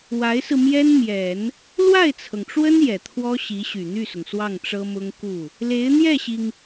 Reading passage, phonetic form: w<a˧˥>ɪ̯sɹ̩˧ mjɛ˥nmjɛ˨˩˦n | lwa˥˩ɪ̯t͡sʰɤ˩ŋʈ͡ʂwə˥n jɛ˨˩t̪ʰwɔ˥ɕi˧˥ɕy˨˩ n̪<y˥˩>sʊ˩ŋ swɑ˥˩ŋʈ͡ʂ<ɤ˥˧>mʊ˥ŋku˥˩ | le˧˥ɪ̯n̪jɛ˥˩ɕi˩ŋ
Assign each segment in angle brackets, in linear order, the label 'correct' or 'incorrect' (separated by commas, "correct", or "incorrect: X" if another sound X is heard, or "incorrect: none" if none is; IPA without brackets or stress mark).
correct, correct, incorrect: ɤ˥